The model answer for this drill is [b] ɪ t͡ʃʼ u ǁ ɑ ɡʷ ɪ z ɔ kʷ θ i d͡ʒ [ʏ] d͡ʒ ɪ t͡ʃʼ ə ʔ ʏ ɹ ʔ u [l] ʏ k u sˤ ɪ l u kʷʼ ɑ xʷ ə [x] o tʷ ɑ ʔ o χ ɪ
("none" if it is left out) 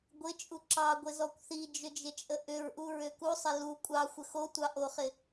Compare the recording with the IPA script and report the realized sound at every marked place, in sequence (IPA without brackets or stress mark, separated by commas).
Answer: ɡʷ, ʏ, ɹ, x